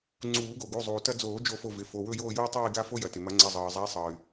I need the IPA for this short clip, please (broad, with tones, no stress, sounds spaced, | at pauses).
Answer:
ŋ͡ǀ uː˨˩˦ ɡ o˩ ɡ u˩˧˩ zˤ uː˩ t ɐ˦ d͡z oː˨˩˦ d͡ʒ o˦˨ f o˦˨ v ɪ˩˧˩ f o˩˧˩ w ɵ˦˨ j oː˦˨ j u˦ i̯ tˤ uː˦˨ i̯ ɡ a˦ f o˦ j ɐ˩ t ɪ˩ m ɐ˨˩˦ ŋ͡ǀ ɐ˩˧˩ zˤ ɤː˩ zˤ a˨˦ i̯ sˤ ɤː˩ y̯